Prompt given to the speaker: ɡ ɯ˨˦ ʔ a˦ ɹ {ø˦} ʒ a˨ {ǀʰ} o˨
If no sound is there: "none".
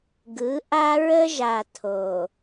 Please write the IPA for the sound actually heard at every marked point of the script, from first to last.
ə˦, tʰ

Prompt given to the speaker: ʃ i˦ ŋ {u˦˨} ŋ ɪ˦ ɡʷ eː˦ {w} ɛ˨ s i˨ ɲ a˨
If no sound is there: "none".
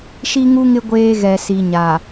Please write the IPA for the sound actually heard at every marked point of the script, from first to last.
u˦, ɣ

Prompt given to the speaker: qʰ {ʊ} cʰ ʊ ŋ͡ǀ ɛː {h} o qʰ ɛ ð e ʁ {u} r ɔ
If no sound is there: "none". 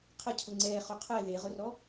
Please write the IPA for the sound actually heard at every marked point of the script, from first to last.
ə, χ, ʊ

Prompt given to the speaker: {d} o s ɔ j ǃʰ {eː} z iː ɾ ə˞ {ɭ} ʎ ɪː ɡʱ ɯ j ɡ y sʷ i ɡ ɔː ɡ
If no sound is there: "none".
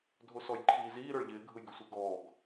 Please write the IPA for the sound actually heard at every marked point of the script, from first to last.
dʱ, iː, ɭ

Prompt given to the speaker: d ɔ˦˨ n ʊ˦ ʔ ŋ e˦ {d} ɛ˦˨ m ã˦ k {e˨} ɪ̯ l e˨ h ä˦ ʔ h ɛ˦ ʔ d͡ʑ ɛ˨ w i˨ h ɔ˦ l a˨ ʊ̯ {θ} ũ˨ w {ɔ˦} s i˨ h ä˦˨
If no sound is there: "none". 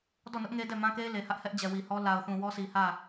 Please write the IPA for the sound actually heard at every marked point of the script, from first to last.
d, e˦, θ, ɔ˦

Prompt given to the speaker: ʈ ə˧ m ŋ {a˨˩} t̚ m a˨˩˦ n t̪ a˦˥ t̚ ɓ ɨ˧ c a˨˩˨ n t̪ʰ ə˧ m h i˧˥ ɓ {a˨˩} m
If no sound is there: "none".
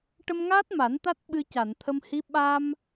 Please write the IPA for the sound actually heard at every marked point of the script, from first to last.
a˦˥, a˧

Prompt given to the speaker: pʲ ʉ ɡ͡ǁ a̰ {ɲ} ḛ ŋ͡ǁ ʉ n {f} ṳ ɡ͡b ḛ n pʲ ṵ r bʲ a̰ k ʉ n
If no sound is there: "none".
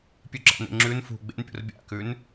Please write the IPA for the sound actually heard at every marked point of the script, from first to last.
n, f

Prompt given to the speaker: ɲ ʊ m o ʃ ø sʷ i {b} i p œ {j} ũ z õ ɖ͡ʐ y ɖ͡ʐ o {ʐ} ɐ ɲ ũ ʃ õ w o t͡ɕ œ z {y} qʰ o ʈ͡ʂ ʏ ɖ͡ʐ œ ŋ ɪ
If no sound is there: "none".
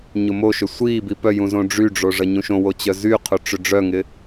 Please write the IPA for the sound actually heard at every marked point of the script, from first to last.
b, j, ʐ, y

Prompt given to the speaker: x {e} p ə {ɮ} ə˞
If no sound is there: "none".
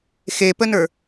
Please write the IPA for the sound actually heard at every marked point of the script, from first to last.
e, n

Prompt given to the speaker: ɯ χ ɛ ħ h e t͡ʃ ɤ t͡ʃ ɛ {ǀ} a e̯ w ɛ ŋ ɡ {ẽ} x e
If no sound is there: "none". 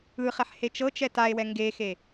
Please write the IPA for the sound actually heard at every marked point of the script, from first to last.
t, e

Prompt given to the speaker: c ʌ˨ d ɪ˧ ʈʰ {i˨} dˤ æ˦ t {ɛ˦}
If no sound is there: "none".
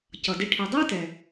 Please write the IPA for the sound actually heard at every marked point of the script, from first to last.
i˨, ɛ˨

